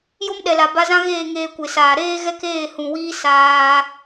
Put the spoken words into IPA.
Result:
j o˦ m ɗ ɛ˨ l a˨ b a˧ z ã˦ ɣ eː˦˨ ŋ eː˧ kʷ e˨ s aː˨ ɾ eː˧ ɣ ɛ˧ k eː˦˨ h ũ˨ w iː˦ s aː˧

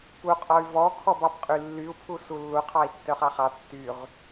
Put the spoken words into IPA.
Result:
p u qʼ ɔ y̯ v ɔ kʰ ɔ b ɑ b qʼ y lː y u̯ pʰ u s u lː u qʰ ɑ i̯ tː œ χ ɑ χ ɑ tː y ʁ

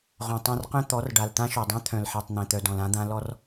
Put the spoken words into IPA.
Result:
ʁ õ˨ tˤ ã˦ r q œ̃˦ t̪ ɔ˨˦ r ɖ a˨ l t̪ ã˦ ʃ o˨ dˤ œ̃˦ t̪ʰ œ̃˨ l ħ ɛ˨ tˤ n̪ ɛ̃˨ t̪ œ˨ d ɔ̃˨ l ã˦ d̪ ã˦ l ɔ˦ r

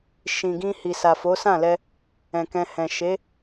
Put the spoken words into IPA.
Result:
ʃ ĩ˨ ɡ ĩ˧ h i˨ s a˨ f o˨˦ s ã˦˨ l ɛ˧ | ɛ̃˨ k ɛ̃˧ h ɛ̃˨ ʃ e˨˦

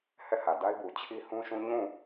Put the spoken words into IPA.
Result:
h ɛ˦˨ h ä˨ d a˦ ɪ̯ b u˨ t͡ɕʰ i˦ h ũ˦ ʃ ũ˦ ɲ ũ˦˨

